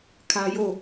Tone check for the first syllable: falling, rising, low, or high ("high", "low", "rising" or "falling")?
high